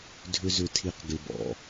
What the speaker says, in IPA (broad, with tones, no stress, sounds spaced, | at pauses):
dʱ ʏ˦ z ʏ˧ tʰ i˧ q ɡ ɪ˧ b ɔ̰˨